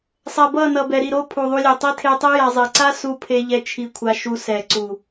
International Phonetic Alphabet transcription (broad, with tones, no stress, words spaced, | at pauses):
sˤɛ˨bʌ˦˨nʌ˨bɛ˨ ɾi˦˨ɾo˦ pʰu˨ðˤu˧lʲe˨tˤi˦ tʰe˧tˤi˦ ja˧zˤi˨ ǀa˦su˧ pʰe˧ʎɛ˧ t͡ʃʰi˧kʷʰa˧ʃu˧sɛ˨ ǀu˨